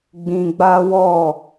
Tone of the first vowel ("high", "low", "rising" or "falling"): low